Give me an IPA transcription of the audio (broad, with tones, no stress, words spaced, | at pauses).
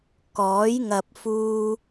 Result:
kɔː˨˥j ŋɐ˨p̚fuː˧